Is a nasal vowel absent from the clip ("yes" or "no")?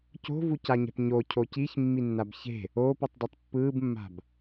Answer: yes